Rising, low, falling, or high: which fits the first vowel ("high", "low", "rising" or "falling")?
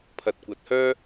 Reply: low